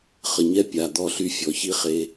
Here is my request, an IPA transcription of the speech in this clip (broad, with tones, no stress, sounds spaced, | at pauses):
χ ə˨ ɲ ɛ˦ pʲ a˨ d̪ ɔ˨ ɬ y˨ fʲ ɔ˨ ç i˦ χ e˦